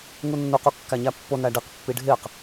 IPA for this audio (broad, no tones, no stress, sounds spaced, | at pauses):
ŋ u nː u q u kː æ ɲ æ pː o n æ ɖ i q pː i ɖʱ e q